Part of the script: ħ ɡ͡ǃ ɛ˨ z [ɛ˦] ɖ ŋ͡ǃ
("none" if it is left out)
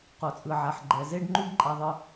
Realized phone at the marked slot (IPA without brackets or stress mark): e˦